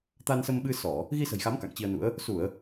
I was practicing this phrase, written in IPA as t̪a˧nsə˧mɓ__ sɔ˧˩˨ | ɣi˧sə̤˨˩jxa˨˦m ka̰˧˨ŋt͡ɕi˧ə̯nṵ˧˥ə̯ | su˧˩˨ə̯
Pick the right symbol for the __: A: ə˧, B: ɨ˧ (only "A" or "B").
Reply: B